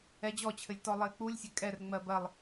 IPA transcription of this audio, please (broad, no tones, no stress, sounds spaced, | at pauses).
ɛ d͡ʑ ɔ t͡ɕʰ ɘ lʲ t ɔ lˠ ɘ ɪ̯ k͡p u lʲ sʲ ɘ kʼ ɛ r ŋ͡m ɜ b ɜ lˠ